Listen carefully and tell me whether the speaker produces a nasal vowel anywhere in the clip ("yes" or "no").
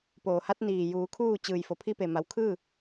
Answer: no